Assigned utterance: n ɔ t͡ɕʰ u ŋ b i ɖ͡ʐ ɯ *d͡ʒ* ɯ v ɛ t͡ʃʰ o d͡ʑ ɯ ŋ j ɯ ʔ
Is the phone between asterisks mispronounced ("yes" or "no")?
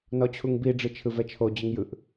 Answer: yes